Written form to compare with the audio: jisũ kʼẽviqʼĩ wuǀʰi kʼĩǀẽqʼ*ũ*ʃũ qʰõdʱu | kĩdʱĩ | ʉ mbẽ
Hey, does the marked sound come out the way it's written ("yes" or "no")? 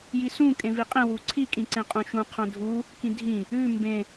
yes